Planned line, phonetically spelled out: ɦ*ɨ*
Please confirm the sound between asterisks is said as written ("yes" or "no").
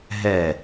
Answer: no